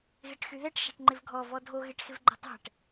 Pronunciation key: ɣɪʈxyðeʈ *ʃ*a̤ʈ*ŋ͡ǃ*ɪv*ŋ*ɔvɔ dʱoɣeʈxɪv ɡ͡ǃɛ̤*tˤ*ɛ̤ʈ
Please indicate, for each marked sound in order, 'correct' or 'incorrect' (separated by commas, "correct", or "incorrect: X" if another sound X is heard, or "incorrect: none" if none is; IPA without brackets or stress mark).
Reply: correct, correct, incorrect: ɡʱ, correct